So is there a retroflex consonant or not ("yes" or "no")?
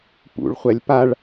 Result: yes